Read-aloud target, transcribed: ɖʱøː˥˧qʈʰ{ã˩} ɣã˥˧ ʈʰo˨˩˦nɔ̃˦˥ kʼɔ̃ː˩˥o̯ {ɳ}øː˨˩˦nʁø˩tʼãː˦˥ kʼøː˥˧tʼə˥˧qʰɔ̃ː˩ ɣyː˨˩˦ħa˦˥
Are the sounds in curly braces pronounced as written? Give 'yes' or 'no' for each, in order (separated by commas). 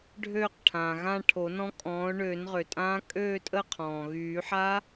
no, yes